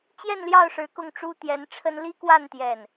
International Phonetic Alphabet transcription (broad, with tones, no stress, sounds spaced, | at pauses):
t͡ɕ j ɛ˥˧ n l j ɑ˥˩ ʊ̯ ʂ ɻ̩˧˥ k ʊ˥˩ ŋ ʈ͡ʂ u˥ t̪ j ɛ˧˥ n ʈ͡ʂʰ ə˥ n l i˥ k w a˥˧ n t̪ j ɛ˥˩ n